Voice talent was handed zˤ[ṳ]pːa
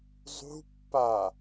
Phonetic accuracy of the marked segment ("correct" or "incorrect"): correct